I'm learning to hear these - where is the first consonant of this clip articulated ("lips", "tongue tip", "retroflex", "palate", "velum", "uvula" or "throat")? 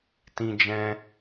tongue tip